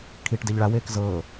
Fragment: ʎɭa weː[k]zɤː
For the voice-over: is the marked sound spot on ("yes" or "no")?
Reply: yes